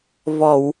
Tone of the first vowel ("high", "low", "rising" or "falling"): low